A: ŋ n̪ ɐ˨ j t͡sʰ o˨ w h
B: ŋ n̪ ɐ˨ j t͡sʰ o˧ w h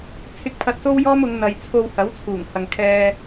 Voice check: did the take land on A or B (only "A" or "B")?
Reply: B